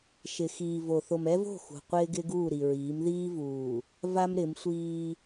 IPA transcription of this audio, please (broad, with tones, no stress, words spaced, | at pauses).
ʃɪ˨xiː˨ vo˨ θo˨mɛ˦vo̤˦˨ xṳ˨ qʷɪː˦ɡɪ˦ɡuː˦˨ ɾi˨ɹiː˨˦m ðiː˦vuː˨ | va˦m ɾɪ˨˦msʷiː˦